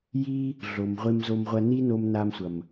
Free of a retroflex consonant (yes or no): yes